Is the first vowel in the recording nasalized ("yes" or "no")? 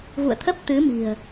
no